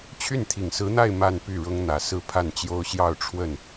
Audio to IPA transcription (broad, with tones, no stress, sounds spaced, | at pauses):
t͡ɕʰ y˥˩ n t̪ʰ i˨˩ ŋ s ɹ̩˧˥ n̪ a˥˧ ɪ̯ m a˥˧ n p y˥˩ ɻ ʊ˥ ŋ n̪ ä˨˩ s ɹ̩˥˧ pʰ a˥˩ n t͡ɕ j o˥ ʊ̯ ɕ j ɑ˥˧ ʊ̯ ʈ͡ʂʰ w ə˥˩ n